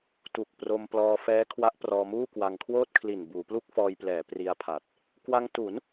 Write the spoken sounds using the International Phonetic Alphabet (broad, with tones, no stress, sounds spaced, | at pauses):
t u˨˩ k̚ p r o˧ m p l ɔː˧ f ɛː˦˥ kʰ w a˦˥ ʔ p r ɔː˧ m uː˥˩ k w a˧ ŋ kʰ w oː˥˩ t̚ kʰ l i˨˩ n b uː˩˦ p l u˥˩ k̚ f ɔː˧ j p l ɛː˩˦ p r i˧ a̯ pʰ a˨˩ t̚ | k w a˧ ŋ t u˩˦ n